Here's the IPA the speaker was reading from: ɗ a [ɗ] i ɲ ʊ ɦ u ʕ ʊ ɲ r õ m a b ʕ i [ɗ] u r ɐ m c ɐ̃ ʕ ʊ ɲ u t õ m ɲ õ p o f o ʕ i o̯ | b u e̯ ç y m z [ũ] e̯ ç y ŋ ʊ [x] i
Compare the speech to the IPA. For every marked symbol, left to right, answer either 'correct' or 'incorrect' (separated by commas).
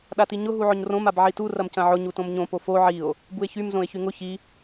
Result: incorrect, incorrect, incorrect, incorrect